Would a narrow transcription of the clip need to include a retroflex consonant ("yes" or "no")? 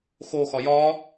no